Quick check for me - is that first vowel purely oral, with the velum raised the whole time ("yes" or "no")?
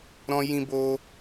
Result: no